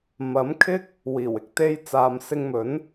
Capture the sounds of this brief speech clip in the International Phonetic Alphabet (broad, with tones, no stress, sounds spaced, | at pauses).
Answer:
m ɐ˨˥ m kʰ ɪ˥ k̚ | w iː˨˩ w ɪ˨ k̚ t̪ e˥ j t͡s aː˧ m s ɪ˧ ŋ m ɵ˨˥ n